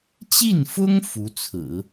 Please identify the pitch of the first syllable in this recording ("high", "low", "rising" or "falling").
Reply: falling